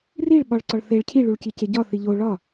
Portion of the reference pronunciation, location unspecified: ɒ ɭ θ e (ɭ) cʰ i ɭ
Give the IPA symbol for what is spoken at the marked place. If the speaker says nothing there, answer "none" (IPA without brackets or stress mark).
ɭ